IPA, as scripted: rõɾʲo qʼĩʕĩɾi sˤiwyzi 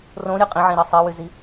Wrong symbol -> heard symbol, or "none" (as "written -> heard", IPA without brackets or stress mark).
none